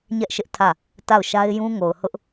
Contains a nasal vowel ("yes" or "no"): yes